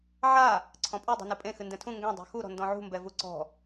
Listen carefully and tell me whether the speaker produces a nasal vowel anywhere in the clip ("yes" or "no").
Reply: yes